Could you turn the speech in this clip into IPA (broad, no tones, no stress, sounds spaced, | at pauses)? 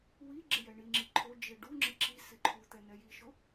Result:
w i ɡ͡ǁ ɪ j ɛ ɳ i ŋ͡ǁ i ǃʰ o d͡ʒ e ɖ u ŋ͡ǁ ɪ ǁ i s ɪ ǃʰ u t̪ ɛ n ɛ j i ʃ ʊ